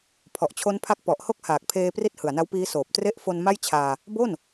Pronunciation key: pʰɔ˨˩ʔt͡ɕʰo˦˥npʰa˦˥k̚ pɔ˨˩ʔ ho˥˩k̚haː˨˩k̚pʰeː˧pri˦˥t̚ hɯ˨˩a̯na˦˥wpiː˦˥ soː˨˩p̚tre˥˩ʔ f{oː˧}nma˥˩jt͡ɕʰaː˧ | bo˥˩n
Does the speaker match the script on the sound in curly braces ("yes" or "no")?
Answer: no